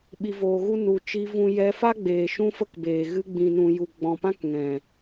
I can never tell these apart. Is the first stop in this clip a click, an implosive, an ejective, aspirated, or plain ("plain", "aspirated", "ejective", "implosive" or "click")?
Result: implosive